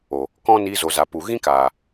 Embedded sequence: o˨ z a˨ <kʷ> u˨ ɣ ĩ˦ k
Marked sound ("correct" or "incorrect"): incorrect